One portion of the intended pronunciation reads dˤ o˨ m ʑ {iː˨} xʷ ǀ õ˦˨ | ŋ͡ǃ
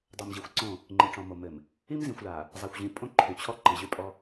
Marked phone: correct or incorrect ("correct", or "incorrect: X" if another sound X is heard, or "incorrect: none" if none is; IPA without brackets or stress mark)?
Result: incorrect: i˨